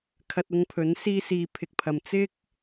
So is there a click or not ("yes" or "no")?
no